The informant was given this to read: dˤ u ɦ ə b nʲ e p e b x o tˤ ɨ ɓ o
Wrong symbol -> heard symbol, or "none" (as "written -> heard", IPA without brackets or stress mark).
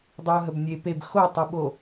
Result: none